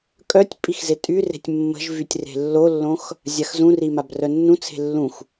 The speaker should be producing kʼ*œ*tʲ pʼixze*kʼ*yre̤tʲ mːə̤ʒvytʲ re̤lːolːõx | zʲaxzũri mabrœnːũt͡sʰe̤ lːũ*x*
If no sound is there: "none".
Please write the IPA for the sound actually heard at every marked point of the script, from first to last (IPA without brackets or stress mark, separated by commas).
œ, tʼ, x